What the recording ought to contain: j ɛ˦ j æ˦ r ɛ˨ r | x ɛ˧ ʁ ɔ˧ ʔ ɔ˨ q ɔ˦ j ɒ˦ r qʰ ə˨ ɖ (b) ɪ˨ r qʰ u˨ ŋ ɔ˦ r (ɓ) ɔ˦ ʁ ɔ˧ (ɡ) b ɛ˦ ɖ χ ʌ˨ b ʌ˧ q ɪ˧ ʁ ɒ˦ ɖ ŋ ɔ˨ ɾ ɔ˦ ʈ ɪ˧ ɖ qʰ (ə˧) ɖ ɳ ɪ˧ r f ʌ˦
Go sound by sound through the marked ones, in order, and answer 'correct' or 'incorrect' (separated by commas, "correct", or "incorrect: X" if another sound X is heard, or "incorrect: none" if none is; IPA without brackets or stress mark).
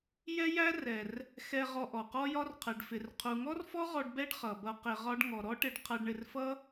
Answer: incorrect: f, incorrect: f, incorrect: ɖ, incorrect: ʌ˧